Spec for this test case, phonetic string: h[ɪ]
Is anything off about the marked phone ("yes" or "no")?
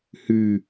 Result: yes